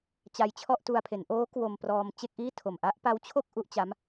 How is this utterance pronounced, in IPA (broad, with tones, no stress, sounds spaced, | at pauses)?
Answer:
t͡ɕ a˧ j t͡ɕʰ ɔ˥˩ ʔ t u˧ a̯ pʰ e˩˦ n ʔ oː˦˥ k w o˧ m p r ɔː˧ m t͡ɕ e˥˩ k̚ ʔ iː˥˩ tʰ o˨˩ m ʔ a˥˩ ʔ p a˦˥ w t͡ɕʰ o˥˩ k̚ ʔ u˦˥ ʔ t͡ɕ a˦˥ m